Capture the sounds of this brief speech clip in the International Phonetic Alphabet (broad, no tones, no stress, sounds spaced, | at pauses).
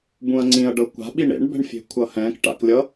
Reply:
b ũ ɐ̯ ŋ͡ǀ ĩ ɐ̯ ɖ ɤ kʷ a̤ ɓ i ɳ ḛ ɳ b ɛ̤ ɳ fʲ e̤ kʷʰ ʌ h ɛ̃ k ʈ a̰ k lʲ ʌ